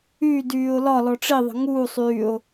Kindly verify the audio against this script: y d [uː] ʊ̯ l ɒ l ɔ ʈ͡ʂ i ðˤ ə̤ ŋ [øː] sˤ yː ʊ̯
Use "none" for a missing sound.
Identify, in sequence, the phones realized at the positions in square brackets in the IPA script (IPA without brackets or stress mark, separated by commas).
yː, uː